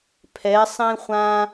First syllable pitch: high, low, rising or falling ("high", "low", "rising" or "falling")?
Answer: rising